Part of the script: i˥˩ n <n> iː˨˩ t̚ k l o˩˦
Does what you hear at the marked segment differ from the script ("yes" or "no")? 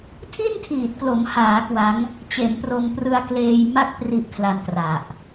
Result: yes